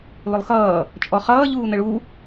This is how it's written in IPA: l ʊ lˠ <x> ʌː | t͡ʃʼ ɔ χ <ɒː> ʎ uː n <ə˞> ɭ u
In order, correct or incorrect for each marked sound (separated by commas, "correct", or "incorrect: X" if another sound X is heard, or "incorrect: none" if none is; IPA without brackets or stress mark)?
correct, incorrect: ʌː, incorrect: ə